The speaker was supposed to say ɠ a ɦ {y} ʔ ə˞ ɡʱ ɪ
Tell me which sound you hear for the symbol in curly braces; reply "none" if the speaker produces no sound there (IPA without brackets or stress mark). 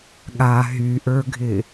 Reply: y